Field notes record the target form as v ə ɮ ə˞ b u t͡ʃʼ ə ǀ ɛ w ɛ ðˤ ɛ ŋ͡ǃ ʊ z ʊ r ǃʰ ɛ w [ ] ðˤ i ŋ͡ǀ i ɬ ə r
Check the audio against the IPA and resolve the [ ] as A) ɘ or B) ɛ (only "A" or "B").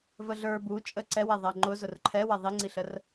B